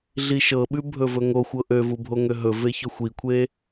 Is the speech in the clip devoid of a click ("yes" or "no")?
yes